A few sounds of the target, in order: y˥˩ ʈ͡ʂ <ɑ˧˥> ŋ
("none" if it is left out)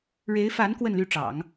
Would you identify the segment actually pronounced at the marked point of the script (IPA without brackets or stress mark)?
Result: ɑ̰˨˩˦